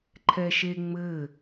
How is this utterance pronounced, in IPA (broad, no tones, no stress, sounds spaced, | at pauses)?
ǃʰ ɛ ʃ e ŋ͡m ɘ